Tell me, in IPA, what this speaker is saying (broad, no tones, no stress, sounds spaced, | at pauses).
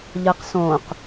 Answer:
ʎ ʌ q s õ q